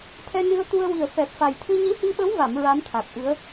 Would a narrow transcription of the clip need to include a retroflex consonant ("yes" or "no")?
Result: no